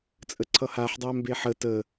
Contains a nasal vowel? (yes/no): no